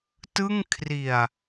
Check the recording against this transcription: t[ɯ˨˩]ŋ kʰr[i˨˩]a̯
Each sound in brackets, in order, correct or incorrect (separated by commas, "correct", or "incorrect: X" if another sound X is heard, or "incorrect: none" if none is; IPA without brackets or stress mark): incorrect: ɯ˥˩, correct